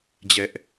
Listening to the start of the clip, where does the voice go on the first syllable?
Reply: high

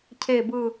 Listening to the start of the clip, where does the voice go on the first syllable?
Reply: low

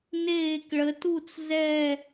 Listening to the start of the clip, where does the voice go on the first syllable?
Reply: falling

